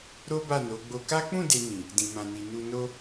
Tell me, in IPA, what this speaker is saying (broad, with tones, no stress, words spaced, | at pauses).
ɾo˦ba˦˨no˨˦ ɡ͡bo˧ka˦ k͡pũ˦˨ de˧nĩ˨ | dĩ˨mã˨ni˨ nu˧ no˦